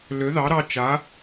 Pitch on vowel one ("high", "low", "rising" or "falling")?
rising